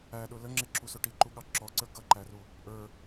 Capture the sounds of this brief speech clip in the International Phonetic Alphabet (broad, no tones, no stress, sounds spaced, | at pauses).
æ ɗ ʊ l ə ŋ͡ǁ ɪ ǁ u s ʊ ʈ i ǃ u ɠ ɑ ǁ ɔ ǀ ə˞ ɡ ʌ ǃ æ r u | ʔ ə˞